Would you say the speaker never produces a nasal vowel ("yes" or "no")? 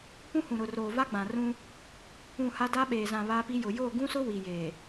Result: no